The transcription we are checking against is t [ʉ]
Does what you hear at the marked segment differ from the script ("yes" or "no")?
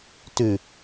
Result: no